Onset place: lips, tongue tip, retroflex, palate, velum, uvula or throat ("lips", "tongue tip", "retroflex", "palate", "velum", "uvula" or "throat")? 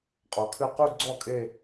uvula